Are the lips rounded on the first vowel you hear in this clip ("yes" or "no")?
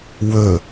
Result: yes